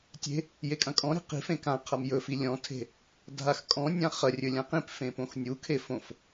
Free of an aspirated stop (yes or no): no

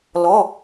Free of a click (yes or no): yes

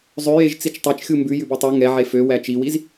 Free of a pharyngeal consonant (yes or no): no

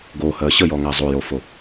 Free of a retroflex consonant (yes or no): yes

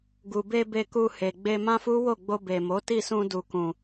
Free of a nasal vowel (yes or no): no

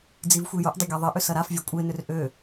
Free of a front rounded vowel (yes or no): no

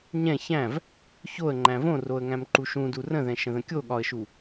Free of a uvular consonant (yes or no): yes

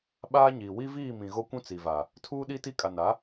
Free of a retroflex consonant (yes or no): yes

